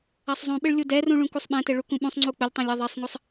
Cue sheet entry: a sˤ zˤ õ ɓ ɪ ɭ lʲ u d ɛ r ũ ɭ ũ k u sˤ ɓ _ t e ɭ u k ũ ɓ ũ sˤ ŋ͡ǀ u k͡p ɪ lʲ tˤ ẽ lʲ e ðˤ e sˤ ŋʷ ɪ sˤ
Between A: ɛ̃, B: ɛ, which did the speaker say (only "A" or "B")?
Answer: A